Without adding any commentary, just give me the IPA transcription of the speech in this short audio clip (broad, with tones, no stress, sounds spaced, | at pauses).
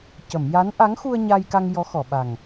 c ə˨˩˨ m j a˧˥ n ʔ a˧˥ ŋ x u˧ ə̯ ɲ a˧ j k a˧ ŋ j ɔ˧˥ x ɔ˨˩˨ ɓ a˨˩ ŋ